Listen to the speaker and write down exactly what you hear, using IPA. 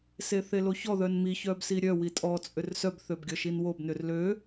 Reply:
s e θ e l o ç ɔ ð œ n m i ç œ b s i ɾʲ œ w i tʼ ɔ t͡sʼ ʏ r s œ b θ ø b ɡʲ ɔ ʃ i n w o b n ʏ r l ø

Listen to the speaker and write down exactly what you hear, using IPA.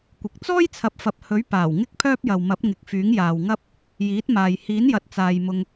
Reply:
kʷ ɪ˨ k̚ t͡s ɔː˥ j t͡sʰ ɐ˨ p̚ f ɐ˨ p̚ h ɵ˨˥ ɥ p aː˨˩ w ŋ ɪ˥ k̚ pʰ œː˥ p̚ j ɐ˨ w m ɐ˨˥ p̚ ŋ ɪ˨˥ k̚ f yː˨˥ ŋ j aː˨ w ŋ ɐ˥ p̚ | j iː˨˥ t̚ m aː˨ j h iː˨˥ n j ɐ˨ t̚ t͡s aː˨ j m ʊ˧ ŋ

